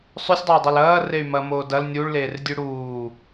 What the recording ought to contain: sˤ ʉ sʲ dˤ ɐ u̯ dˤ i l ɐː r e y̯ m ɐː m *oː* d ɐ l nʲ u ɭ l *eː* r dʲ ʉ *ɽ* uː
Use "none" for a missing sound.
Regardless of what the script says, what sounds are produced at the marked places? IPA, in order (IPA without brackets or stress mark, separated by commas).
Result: oː, eː, ɽ